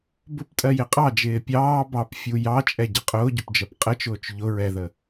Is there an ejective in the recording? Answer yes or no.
yes